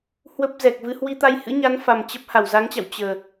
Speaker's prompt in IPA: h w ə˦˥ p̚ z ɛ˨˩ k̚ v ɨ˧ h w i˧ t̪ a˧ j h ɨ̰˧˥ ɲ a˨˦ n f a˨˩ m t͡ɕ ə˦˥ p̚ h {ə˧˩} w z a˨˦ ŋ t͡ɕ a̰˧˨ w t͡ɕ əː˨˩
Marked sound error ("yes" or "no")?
yes